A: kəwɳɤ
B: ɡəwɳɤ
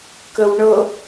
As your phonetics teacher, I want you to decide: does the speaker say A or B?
A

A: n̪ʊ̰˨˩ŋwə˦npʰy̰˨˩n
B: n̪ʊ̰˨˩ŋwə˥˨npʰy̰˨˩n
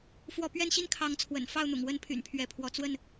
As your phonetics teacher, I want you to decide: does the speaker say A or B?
A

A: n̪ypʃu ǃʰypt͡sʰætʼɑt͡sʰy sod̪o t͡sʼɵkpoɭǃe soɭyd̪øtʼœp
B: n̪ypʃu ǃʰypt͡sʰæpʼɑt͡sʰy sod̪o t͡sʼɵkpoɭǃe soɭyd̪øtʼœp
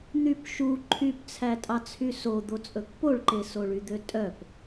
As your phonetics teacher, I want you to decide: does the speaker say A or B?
A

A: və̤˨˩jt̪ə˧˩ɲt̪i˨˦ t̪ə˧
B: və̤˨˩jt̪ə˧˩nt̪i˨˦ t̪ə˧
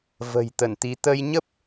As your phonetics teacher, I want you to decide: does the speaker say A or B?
B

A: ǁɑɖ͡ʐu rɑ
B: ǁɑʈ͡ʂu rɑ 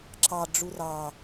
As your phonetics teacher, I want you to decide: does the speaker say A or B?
A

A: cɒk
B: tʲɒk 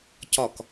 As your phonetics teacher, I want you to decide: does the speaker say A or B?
A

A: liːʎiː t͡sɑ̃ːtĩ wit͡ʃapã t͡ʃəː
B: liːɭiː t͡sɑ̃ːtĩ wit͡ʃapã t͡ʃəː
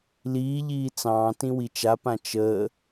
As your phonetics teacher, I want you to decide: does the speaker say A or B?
A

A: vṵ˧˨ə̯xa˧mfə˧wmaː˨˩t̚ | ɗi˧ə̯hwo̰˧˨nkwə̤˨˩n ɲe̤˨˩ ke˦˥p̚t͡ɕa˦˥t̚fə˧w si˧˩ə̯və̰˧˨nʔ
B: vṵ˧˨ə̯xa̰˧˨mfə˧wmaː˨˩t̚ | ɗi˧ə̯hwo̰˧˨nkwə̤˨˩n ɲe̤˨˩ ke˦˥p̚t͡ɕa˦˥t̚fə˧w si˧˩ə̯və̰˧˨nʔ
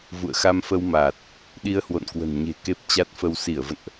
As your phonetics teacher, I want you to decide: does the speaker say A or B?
A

